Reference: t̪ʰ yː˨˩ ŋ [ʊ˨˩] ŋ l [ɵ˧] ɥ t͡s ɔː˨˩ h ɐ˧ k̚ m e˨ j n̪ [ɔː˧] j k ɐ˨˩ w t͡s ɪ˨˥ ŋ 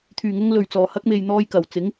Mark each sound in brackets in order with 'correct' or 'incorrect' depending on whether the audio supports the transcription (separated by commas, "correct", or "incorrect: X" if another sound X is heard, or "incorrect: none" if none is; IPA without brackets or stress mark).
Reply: incorrect: ʊ˧, incorrect: ɵ˨˩, correct